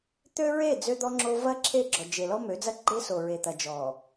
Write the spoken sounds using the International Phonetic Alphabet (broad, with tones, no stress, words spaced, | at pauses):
t̪ø˦ɹe˦˨ d͡zø˦d̪ɔ˦ŋ͡ǁo˦ vɐ˦ ǁʰe˦˨ɡ͡ǁɔ˨d͡ʒe˨ lɔ˦mø˨˦d͡zɐ˦ɡ͡ǃe˦ so˨ɹe˨t̪ɐ˨d͡ʒɔ˨